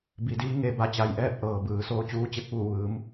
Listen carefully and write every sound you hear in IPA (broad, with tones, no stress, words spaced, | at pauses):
bi˩˧diː˧˥ ŋe˧˥ba˧˥t͡ɕa˧jʔɛː˥˨p̚ ʔɤː˩bɯː˩˧ soː˧t͡ɕuː˧˥t͡ɕe˧k̚ʋuː˧˩ ʋɯː˩˧m